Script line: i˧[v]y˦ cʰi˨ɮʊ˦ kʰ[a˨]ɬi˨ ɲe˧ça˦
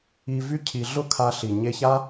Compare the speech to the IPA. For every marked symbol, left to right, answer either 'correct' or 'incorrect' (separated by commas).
correct, incorrect